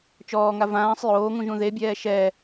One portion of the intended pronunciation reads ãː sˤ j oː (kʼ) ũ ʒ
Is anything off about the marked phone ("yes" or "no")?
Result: yes